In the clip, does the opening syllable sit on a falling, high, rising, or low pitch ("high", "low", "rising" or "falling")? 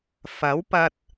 rising